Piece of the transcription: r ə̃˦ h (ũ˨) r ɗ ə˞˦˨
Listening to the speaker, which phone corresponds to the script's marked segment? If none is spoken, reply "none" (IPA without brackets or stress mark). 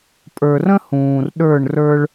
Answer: ũː˨